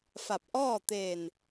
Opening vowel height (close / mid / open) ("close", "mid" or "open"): open